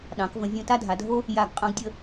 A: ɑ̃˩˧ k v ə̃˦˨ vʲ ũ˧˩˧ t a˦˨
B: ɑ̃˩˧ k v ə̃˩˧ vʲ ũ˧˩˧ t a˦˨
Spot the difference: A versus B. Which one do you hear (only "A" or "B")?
B